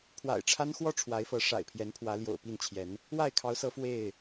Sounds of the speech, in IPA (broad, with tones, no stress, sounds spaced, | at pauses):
pʰ w a̰˨˩ ɪ̯ ʈ͡ʂʰ a˦ n x w ɔ˥˨ ʈ͡ʂʰ w a˨˦ ɪ̯ f ɤ˨˦ ʂ a̰˨˩ ɪ̯ pʰ j ɛ˨˦ n pʰ w ä˨˦ l j o̰˨˩ ʊ̯ p i˥˨ n t͡ɕʰ j ɛ˨˦ n | w a˥˨ ɪ̯ kʰ ɑ˨˦ ʊ̯ s ɤ˨˦ f w e˥˨ ɪ̯